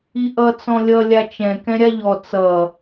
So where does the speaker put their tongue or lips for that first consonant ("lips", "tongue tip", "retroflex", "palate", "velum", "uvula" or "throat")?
throat